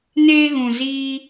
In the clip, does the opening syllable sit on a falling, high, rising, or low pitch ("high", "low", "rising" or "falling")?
high